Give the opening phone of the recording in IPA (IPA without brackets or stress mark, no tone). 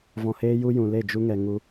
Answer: v